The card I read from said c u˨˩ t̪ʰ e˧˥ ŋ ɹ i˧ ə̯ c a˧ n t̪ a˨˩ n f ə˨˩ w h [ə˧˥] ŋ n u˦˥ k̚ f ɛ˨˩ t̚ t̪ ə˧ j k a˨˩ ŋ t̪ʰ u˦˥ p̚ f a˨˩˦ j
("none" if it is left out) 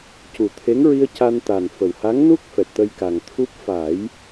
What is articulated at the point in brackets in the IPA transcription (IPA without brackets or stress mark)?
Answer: a˧˥